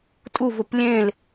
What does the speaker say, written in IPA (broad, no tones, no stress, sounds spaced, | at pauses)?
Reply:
tʼ u v ʊ p lʲ ẽ l